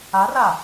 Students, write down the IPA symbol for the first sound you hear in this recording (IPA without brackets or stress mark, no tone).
a